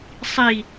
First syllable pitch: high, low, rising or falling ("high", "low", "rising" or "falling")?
low